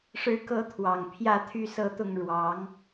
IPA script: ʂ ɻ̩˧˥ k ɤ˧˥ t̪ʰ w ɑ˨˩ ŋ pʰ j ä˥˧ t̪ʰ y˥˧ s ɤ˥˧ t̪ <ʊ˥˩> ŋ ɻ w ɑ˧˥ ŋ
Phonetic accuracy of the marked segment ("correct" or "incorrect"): correct